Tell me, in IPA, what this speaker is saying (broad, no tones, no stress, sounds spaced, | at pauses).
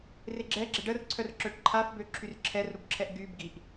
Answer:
r e ɡ͡ǁ ɛ ɡ͡ǁ ɛ ɖ ə r ǀʰ œ r ǁ œ ʈ ǃʰ a f b ø ǁʰ y r ǁʰ ɛ r ɾ u b ǁʰ ɛ ʔ ɡ y b ɡ i ʔ